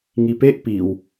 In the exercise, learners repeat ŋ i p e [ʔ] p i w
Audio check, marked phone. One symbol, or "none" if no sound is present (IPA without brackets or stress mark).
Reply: ʔ